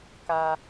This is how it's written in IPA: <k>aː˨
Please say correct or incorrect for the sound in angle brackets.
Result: correct